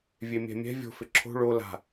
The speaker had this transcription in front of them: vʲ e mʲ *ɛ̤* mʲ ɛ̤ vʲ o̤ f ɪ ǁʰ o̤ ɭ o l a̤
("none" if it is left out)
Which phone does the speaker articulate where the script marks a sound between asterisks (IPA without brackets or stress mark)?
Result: ɛ̤